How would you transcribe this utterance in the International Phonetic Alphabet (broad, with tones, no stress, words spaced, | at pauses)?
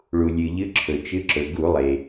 ɭu˩lʲɨ˩ʎɨ˨˦ ǁʰɵ˩t͡ʃɨ˨˦ ǁɵ˩ɡu˧˩˧lˠe˩